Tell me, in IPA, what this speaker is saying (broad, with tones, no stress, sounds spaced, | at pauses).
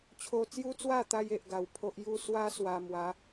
t͡ɕʰ o˧ t͡s j u˦ t͡s w a˥˧ t̪ a˧ j e˨ ʔ ɡ a˨˩ w pʰ o˦ ʔ j u˥˧ s w a˦ s w a˧ m w a˨˦